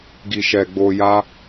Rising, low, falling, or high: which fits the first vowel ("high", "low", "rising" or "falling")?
low